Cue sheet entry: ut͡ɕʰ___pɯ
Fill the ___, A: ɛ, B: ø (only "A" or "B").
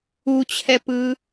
A